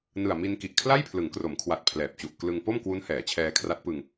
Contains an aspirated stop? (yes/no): yes